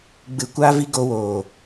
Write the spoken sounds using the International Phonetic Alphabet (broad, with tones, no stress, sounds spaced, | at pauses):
ɡ͡b ɨ˧ kʷ aː˦ v i˦ ɡ o˧ w oː˨